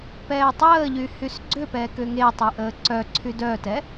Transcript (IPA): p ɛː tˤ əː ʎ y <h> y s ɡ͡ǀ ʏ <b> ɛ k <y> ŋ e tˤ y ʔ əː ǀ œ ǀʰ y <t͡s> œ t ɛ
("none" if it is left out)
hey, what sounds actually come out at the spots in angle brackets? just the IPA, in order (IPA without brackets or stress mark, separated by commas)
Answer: h, p, ʏ, d